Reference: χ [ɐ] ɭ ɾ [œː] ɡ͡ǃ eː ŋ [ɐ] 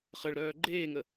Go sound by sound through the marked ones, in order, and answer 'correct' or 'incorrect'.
incorrect: ə, correct, incorrect: ə

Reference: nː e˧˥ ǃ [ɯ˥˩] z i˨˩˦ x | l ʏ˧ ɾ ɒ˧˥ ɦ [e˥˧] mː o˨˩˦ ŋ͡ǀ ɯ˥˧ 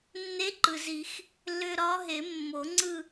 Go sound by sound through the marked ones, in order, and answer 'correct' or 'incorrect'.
incorrect: ɯ˩, incorrect: e˨˩˦

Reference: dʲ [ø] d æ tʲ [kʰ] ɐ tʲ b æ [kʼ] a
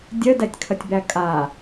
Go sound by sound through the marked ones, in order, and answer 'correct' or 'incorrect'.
incorrect: œ, correct, correct

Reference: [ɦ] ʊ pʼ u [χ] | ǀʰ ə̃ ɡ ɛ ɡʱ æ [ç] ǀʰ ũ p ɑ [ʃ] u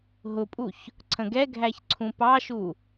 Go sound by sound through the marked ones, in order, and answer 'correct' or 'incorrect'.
correct, incorrect: ç, correct, correct

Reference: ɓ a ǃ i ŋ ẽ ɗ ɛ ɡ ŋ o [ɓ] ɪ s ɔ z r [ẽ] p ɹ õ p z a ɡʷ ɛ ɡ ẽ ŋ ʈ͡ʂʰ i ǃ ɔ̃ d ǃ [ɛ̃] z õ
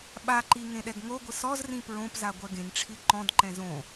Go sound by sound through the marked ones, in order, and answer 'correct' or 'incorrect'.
incorrect: ɡʷ, incorrect: ĩ, correct

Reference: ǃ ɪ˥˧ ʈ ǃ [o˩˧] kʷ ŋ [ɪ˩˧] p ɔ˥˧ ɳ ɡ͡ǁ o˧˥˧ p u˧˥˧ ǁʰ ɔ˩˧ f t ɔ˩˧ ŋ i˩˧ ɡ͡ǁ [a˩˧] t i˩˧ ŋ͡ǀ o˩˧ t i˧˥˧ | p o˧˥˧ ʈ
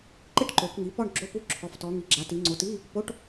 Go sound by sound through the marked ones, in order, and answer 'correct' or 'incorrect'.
correct, incorrect: i˩˧, correct

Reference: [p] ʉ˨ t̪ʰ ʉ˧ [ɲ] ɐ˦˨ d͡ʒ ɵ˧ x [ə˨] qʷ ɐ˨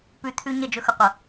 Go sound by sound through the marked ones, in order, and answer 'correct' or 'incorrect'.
correct, correct, incorrect: ɵ˨

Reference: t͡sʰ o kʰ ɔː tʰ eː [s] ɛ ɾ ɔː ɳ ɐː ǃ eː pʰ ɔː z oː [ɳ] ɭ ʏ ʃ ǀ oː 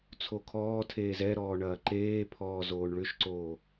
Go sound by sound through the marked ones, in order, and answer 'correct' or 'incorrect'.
incorrect: z, correct

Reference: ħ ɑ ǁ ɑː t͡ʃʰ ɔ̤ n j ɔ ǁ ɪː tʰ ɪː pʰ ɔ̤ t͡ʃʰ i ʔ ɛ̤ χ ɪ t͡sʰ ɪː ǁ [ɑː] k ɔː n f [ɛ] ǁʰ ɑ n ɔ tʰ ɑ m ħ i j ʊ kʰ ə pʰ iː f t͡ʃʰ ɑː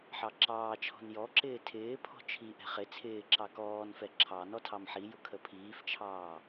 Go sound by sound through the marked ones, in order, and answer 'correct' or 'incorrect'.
incorrect: ɑ, correct

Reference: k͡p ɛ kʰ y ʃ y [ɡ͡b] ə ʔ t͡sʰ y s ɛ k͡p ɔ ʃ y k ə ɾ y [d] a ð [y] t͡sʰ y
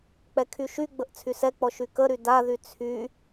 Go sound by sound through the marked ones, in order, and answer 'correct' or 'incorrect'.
correct, correct, correct

